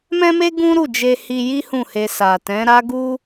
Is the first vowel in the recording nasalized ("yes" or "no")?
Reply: yes